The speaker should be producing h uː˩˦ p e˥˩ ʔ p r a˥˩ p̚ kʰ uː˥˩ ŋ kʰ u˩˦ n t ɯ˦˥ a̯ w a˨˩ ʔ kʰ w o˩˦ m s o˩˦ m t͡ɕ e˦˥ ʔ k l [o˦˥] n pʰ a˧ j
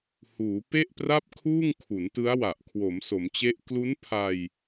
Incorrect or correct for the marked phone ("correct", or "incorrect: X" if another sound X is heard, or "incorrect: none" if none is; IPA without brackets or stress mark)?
incorrect: u˦˥